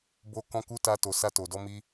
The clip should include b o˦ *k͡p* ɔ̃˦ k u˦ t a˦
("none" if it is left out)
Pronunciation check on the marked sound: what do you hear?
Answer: k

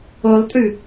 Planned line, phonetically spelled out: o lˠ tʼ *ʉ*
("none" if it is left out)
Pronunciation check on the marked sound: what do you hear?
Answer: ʉ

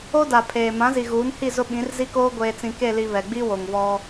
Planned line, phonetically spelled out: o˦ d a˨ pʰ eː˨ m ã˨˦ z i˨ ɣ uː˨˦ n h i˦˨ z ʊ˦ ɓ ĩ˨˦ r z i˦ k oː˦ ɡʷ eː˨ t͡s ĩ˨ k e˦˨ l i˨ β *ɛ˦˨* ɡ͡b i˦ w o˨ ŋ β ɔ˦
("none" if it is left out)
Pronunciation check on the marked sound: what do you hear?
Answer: ɛ˨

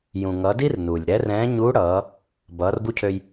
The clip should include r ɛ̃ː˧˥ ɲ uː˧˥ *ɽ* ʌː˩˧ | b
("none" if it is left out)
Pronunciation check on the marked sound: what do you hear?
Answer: ɽ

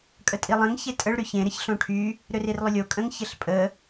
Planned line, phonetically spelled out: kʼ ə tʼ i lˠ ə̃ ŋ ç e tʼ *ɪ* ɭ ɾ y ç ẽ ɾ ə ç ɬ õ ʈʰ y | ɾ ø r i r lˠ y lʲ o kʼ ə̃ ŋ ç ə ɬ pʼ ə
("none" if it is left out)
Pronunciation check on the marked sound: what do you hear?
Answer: ə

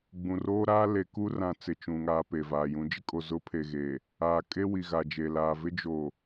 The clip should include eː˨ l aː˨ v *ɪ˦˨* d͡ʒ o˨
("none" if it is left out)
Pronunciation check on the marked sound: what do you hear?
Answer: ɪ˦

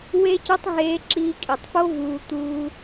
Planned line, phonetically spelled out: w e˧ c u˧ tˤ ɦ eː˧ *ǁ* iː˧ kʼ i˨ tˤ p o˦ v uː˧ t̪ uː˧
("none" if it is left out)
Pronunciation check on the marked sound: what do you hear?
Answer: ǁ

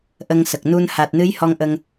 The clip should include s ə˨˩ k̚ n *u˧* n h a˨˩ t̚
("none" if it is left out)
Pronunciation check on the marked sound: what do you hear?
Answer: u˧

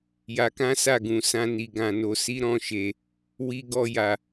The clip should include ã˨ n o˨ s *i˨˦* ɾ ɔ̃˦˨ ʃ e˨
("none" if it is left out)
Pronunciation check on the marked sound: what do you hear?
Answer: i˨˦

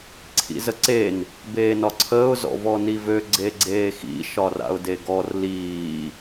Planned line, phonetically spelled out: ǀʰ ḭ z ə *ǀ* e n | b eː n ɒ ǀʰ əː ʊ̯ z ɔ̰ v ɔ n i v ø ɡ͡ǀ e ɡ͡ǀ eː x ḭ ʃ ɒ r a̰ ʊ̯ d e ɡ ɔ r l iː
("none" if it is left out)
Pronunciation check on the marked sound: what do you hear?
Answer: ǀ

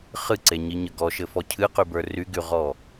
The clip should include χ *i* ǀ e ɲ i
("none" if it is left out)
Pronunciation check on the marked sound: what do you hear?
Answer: ɨ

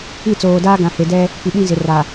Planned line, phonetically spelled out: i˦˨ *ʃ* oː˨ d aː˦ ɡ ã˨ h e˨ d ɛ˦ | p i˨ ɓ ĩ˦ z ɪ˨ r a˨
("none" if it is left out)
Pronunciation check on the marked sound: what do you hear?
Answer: t͡s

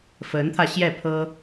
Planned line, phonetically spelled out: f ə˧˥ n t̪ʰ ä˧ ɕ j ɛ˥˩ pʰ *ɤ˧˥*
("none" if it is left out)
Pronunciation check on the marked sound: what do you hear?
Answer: ɤ˥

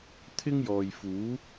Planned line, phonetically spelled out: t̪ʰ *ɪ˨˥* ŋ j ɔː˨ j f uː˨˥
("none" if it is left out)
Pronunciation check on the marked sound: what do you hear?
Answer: ɪ˥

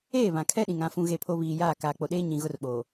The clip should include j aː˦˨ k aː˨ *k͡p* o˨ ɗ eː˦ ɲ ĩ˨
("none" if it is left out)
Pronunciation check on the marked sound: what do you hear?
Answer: k͡p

